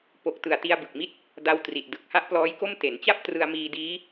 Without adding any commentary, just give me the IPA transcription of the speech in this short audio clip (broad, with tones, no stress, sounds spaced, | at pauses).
p o˨˩ k̚ t ɯ˨˩ a̯ t i˧ a̯ b ɯ˨˩ k̚ m i˦˥ t̚ | d a˧ w t r i˨˩ t̚ d ɯ˨˩ k̚ h a˥˩ ʔ p l ɔː˦˥ j k o˥˩ m t e˩˦ n t͡ɕ a˥˩ p̚ t r ɯ˧ a̯ m iː˧ d iː˦˥